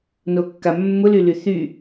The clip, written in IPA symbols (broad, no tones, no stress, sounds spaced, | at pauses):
n o kː a mː ʊ l y l y θ y